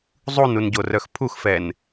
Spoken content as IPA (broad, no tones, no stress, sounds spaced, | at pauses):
zˤ u n u n ɟ o r œ x pʰ u x f ɛ n